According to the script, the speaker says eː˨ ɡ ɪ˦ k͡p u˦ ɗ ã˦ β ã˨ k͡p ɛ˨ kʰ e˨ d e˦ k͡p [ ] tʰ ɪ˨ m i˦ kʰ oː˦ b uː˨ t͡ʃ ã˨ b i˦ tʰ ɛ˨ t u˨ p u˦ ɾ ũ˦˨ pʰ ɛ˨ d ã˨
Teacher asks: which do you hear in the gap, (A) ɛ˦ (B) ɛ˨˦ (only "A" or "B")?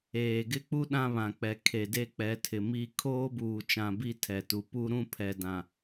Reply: B